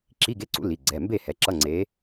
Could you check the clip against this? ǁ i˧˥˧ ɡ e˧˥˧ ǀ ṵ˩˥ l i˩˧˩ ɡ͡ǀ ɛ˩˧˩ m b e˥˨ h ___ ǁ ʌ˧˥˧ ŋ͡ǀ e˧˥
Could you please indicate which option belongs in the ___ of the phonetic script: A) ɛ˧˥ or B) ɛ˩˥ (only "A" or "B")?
B